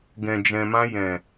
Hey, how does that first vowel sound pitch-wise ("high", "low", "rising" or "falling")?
low